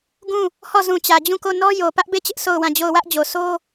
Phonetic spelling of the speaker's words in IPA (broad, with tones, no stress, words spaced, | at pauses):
ɡũ˦˨ | hɔ˦˨ zũ˨t͡ɕä˨d͡ʑũ˦˨ko˦˨ nɔ˦jo˨ pä˦ʔbe˦˨t͡ɕɪ˦ʔ so˦˨ʊ̯wã˦˨d͡ʑo˦˨ʊ̯ wä˦ʔd͡ʑo˨ sʰo˦